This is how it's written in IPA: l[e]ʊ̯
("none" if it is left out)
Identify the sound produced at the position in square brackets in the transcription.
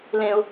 ẽ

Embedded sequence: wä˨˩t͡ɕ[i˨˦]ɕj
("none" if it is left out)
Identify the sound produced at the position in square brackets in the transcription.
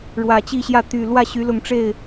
i˥˨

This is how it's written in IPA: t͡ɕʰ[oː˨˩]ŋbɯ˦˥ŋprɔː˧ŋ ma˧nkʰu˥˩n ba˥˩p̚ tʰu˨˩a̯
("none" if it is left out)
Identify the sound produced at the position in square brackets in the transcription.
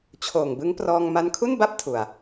oː˨˩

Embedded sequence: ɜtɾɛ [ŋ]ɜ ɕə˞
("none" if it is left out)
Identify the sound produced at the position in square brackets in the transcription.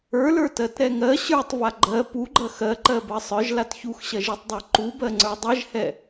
ŋ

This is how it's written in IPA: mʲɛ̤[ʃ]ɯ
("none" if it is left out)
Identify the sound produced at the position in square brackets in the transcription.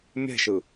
ʃ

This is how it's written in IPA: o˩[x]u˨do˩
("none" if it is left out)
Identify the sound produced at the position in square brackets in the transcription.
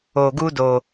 ɡ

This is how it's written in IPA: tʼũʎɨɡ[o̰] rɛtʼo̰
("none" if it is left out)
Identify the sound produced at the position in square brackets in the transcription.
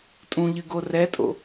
o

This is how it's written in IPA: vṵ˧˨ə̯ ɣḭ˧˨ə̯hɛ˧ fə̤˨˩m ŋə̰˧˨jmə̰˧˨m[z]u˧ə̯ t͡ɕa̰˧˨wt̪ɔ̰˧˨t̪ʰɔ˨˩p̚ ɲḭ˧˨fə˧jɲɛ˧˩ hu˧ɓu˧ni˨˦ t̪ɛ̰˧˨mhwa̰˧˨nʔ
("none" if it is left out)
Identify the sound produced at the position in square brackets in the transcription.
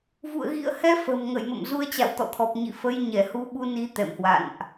z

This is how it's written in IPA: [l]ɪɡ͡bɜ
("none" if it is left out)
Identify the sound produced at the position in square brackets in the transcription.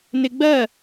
n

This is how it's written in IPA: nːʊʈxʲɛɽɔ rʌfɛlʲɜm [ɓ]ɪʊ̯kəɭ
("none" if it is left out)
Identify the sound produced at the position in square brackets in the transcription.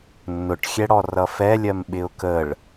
ɓ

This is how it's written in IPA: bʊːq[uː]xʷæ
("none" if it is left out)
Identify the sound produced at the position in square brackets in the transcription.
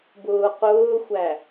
ʊː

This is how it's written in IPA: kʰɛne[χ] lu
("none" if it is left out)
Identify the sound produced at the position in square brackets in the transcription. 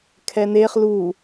χ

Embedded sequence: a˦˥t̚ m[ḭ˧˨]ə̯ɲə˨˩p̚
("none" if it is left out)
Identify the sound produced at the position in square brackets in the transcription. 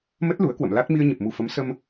i˧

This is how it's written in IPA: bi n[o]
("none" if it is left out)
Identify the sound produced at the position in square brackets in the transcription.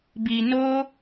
o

